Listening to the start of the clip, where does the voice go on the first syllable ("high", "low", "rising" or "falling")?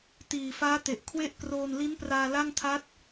low